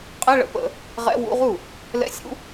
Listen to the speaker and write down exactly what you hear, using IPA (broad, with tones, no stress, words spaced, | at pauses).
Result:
qʼɛ˧˥˧ɭə̰˧˩˧pə̰˧˩˧ | ʁɛ̰˧˥˧wṵ˧˥˧ʁu˥˩ | lɛ̰˧˥˧sʲṵ˧˥˧